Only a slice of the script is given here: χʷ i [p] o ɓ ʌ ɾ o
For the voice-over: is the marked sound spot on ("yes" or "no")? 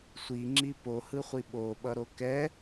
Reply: no